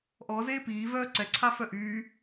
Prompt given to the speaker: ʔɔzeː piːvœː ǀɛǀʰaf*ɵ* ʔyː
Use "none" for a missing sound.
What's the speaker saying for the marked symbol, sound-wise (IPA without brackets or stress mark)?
œ